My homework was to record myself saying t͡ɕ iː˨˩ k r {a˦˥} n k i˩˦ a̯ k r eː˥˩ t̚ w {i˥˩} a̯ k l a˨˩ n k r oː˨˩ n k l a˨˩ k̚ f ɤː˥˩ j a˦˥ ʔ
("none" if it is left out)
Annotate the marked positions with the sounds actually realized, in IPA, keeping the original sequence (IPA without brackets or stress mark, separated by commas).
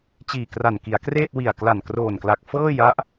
a˨˩, i˨˩